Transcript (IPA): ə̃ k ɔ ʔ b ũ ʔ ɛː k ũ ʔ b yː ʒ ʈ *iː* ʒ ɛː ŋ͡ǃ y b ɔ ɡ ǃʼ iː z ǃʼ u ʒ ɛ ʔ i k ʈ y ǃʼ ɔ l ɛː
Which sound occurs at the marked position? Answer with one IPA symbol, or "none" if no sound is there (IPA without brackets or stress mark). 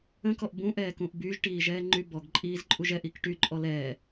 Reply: iː